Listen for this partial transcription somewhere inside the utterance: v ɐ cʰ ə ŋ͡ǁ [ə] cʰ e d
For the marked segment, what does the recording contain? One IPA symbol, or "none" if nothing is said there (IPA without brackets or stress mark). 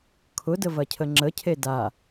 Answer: ə